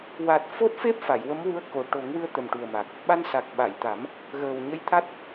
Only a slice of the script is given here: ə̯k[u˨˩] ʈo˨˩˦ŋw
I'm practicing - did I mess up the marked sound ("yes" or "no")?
yes